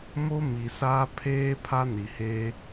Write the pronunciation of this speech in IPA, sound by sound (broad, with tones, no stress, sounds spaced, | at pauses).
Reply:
m o˦ m i˨ s aː˦ pʰ eː˦ pʰ a˦ n i˨ h e˦